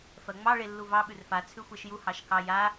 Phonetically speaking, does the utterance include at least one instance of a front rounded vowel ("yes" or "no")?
no